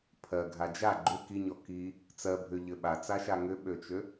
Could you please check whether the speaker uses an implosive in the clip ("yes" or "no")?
yes